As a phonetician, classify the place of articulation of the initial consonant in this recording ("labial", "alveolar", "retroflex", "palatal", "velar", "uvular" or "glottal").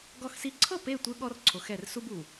velar